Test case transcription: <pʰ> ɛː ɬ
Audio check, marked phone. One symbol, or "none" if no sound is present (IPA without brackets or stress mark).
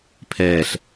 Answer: pʰ